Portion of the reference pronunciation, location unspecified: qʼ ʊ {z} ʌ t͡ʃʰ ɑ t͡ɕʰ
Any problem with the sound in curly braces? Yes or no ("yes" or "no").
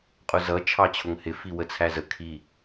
no